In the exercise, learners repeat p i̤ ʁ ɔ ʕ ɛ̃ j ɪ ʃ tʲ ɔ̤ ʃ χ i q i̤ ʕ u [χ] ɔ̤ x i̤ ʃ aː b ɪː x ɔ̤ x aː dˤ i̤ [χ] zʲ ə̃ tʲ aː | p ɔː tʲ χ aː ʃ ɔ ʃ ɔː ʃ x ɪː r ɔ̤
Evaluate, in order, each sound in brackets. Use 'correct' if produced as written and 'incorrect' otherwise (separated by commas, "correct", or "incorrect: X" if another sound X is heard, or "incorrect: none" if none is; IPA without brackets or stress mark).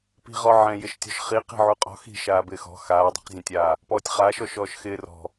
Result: incorrect: qʼ, incorrect: q